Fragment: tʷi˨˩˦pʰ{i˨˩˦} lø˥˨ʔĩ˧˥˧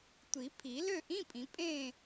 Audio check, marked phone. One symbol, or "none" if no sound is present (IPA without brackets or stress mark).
i˨˩˦